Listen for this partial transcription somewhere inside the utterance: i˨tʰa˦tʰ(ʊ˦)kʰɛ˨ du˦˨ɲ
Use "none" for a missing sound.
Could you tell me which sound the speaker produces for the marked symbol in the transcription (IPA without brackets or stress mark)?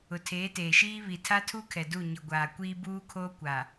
u˦